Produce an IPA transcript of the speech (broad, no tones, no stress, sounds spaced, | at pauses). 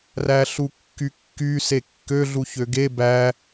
r æ ɬ u kː y kː y s e kː ø ɮ u ç ø ɡ e b æ